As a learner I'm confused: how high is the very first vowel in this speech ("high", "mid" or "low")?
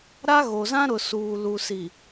low